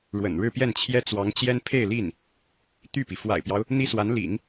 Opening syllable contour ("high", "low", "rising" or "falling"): low